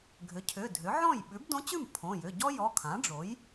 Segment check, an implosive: present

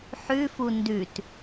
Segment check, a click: absent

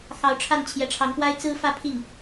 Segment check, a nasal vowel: absent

